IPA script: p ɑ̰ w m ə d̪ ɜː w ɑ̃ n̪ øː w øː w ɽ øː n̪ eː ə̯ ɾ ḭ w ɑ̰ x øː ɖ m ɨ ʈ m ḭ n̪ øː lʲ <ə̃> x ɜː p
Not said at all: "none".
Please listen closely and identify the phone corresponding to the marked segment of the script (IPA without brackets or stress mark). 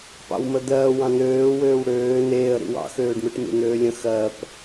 ə̃